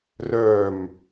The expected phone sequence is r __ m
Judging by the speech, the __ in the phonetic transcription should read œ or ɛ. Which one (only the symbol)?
œ